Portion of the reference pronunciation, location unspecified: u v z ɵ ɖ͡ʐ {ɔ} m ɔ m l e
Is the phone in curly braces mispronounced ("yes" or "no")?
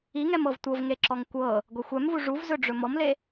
yes